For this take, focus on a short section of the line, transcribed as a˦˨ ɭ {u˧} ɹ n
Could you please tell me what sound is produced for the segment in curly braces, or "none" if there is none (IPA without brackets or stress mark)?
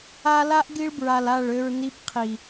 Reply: ø˧